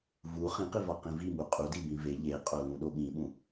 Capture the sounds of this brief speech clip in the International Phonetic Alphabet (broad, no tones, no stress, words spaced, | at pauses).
vu χĩqivɒqĩ vimu qʼudibĩ ve ʎeqʼolũɗo ɠĩɓũ